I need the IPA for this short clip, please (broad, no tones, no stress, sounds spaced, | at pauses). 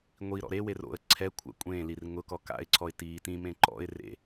ŋʷ i ɾ ɔ̰ ɾ e w e r o̰ ə̯ ǀʰ ɛ kʷʰ a̰ kʷʼ ẽː l i r ŋ ʊ k ɔ k a̰ ɪ̯ ǀʰ ɔ ɪ̯ t iː t ĩ m ẽ ǃ ɔ̰ ɪ̯ r ḛ